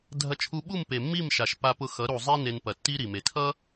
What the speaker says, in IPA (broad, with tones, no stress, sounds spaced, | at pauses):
dʱ ɐ˧ t͡ʃʰ u˧ ɓ u˦˨ m p e˨ mː i˦˨ m ʃ a˨ ʃ p a˧ p ʊ˧ x ʌ˨˦ ɾ u˨ zˤ e˦ n e˧ n p ɐ˨ tː i˦ ɾ i˨ m e˨ tʰ ʌ˦